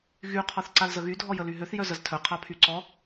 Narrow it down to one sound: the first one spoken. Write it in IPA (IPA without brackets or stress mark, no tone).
ɣ